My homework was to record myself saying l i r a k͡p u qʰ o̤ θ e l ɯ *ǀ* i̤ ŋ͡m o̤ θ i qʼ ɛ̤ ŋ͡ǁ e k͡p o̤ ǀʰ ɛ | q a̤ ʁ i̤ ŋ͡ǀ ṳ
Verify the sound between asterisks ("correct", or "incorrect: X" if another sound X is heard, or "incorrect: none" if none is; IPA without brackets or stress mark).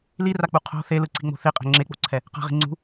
correct